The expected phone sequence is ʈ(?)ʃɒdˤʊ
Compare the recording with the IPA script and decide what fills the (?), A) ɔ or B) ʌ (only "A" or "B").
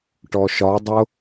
A